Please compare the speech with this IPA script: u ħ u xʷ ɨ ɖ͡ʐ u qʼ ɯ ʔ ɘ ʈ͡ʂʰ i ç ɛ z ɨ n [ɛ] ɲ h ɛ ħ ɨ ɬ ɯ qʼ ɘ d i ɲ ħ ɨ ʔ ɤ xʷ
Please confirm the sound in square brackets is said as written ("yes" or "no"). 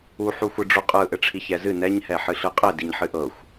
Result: yes